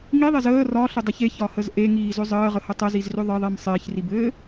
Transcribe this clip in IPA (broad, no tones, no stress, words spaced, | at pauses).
ŋiðˤez əː rɒɬɪdˤɘç eçɒhəz ʔeŋiːzʏ zˤəːʁəhə tˤəzizrʏ ðˤɪðˤim sˤɪːçribɘː